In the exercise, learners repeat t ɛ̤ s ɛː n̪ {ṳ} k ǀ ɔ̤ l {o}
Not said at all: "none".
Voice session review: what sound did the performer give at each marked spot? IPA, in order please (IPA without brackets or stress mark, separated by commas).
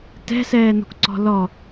ṳ, ɔ